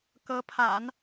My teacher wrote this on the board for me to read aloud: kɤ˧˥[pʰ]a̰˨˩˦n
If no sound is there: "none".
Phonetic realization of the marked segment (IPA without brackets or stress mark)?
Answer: pʰ